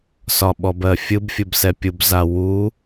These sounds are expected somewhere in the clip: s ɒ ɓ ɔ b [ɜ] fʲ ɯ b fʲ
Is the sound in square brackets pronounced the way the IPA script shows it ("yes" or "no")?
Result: yes